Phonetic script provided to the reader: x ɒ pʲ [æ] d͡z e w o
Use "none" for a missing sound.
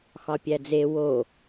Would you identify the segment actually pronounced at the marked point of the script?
æ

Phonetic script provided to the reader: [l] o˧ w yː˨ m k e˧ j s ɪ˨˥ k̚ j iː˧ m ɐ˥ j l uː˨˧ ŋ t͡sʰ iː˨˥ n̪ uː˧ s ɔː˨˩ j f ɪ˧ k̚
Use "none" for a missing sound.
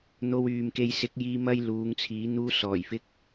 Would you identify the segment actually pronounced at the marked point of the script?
n̪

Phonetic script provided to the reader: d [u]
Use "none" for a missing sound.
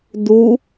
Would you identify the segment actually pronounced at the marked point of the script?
u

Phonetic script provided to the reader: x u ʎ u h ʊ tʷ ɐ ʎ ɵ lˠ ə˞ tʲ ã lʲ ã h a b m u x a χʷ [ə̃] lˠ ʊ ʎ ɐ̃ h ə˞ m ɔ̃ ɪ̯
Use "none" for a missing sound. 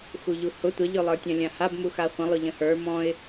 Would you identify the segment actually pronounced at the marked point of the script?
ə̃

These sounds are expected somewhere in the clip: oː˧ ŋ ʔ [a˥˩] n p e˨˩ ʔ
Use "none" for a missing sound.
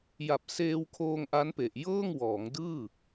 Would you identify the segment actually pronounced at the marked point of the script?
a˦˥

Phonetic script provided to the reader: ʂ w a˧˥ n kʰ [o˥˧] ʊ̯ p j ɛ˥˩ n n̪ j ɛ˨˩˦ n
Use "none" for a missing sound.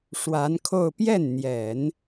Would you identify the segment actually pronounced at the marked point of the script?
o˥˧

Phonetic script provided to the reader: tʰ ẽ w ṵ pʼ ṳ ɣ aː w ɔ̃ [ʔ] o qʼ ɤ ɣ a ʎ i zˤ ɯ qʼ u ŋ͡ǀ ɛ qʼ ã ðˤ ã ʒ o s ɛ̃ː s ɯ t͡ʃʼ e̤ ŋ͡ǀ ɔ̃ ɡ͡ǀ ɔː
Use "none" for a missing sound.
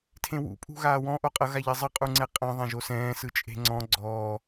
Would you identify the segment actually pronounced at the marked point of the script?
ʔ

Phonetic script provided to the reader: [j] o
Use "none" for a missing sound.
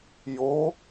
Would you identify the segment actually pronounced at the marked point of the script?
j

